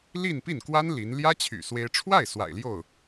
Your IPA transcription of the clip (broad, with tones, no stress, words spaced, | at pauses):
li˥˧npi˥˩nkwa˥n li˧˥n ljä˥t͡ɕʰy̰˨˩ swe˥ɪ̯ ʈ͡ʂʰwa˥˩ɪ̯ swa̰˨˩ɪ̯ ljo˥˩ʊ̯